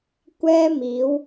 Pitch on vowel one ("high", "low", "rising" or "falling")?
high